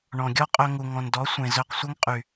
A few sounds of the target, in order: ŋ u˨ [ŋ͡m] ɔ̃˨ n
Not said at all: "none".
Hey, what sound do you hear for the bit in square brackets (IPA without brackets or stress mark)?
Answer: ŋ